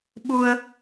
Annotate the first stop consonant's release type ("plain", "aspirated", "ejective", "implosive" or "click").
implosive